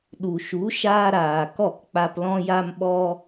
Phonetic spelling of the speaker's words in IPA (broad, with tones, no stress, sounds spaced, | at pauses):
ɗ u˨ ʃ u˨˦ ʃ aː˦ ɾ aː˨ k ɔ˦˨ k k͡p a˧ p l ɔ̃˧ j a˧ m ɓ ɔ˧